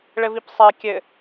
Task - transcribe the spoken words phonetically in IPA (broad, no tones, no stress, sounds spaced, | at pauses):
ɭ ɘ v i p sˤ ɛ kʲ ɘ